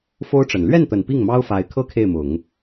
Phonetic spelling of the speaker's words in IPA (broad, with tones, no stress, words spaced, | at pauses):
fo˥ʊ̯ʈ͡ʂə˨˩n lɥɛ˥˩nt̪ə˨˩n pi˥˩ŋmɑ˥ʊ̯fa˧˥ɪ̯kʰɤ˥ kʰe˥˩ɪ̯mʊ˨˩˦ŋ